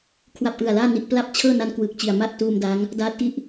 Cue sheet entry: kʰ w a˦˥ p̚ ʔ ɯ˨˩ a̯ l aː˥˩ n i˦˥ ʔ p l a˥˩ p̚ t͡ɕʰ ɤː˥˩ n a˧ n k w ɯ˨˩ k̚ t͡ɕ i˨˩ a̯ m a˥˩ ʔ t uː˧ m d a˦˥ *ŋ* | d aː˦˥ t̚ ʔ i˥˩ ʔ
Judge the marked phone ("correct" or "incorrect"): correct